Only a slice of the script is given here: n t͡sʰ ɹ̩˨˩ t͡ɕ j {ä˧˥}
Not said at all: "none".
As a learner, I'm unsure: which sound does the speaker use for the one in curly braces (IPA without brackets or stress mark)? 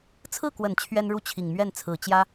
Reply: ä˥